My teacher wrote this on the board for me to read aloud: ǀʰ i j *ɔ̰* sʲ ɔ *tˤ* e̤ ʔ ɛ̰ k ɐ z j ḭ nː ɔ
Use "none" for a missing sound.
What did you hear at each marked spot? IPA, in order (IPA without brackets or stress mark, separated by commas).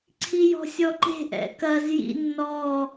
ɔ̤, ǃ